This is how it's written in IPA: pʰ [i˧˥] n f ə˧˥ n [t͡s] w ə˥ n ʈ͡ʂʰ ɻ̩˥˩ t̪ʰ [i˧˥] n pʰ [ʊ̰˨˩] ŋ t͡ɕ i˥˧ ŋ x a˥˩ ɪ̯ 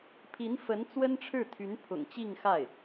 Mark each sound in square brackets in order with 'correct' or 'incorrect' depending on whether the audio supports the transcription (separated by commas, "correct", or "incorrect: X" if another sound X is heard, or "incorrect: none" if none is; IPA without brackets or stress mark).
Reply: correct, correct, incorrect: y˧˥, correct